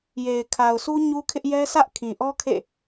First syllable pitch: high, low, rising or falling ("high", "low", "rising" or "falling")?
low